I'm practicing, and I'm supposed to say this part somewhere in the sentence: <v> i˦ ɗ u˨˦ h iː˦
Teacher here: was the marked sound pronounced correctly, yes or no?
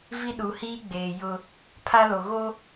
yes